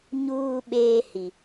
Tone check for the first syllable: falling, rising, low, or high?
low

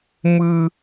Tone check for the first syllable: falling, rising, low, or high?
high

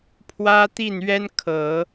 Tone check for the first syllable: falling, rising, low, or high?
high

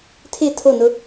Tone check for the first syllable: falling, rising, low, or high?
falling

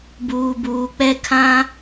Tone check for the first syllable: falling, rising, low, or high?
low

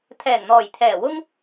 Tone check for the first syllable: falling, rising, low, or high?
low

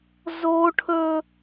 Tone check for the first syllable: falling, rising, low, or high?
high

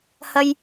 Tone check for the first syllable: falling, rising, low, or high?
low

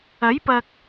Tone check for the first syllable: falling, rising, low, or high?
rising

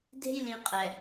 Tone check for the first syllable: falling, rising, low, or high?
high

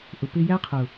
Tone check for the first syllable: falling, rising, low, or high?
low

